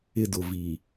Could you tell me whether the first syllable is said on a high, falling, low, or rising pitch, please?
high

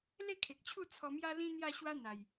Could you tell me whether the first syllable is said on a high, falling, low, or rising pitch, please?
falling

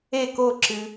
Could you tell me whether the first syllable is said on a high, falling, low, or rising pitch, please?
falling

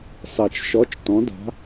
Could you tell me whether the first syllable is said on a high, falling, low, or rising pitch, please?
low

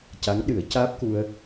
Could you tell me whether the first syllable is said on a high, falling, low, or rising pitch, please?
rising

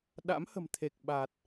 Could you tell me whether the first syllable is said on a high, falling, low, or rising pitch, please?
rising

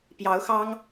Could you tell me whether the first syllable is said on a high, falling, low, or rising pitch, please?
rising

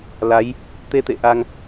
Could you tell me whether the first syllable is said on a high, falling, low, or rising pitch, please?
rising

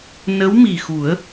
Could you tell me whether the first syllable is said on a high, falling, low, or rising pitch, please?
rising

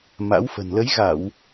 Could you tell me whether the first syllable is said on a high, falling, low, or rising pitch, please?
rising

